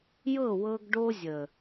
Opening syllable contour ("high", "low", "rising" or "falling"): falling